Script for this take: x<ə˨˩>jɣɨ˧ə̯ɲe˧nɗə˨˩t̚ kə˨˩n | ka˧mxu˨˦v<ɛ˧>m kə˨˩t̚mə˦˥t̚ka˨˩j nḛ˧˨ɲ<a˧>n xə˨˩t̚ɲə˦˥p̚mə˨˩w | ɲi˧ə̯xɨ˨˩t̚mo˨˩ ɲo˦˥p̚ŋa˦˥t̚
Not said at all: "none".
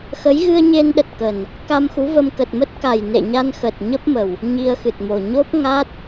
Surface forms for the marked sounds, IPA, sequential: ə˨˦, ə˧, a˧

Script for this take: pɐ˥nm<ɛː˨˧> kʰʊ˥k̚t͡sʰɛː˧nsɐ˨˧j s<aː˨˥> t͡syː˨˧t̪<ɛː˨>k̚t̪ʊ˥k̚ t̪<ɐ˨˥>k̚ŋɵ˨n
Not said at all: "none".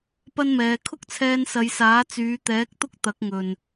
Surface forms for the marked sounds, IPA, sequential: ɛː˨˧, aː˨˥, ɛː˨˥, ɐ˨˥

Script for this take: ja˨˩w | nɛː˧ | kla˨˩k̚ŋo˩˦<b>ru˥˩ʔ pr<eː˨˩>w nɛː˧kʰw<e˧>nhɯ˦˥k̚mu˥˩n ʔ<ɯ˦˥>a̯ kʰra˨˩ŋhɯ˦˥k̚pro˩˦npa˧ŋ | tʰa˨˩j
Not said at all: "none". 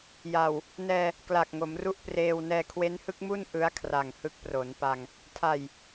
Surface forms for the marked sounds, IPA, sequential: m, eː˧, e˦˥, ɯ˦˥

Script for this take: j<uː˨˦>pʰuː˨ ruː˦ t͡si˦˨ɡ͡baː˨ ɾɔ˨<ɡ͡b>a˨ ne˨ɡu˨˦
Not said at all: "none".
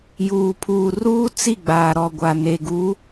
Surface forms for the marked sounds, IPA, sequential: uː˨, ɡʷ

